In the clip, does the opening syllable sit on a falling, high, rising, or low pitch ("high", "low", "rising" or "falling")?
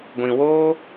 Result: low